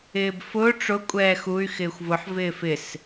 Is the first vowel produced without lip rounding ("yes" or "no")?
yes